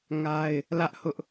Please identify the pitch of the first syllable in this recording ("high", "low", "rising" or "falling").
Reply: high